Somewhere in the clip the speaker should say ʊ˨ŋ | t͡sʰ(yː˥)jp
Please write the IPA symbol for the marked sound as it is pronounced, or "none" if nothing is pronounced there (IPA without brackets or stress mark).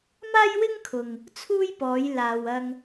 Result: uː˥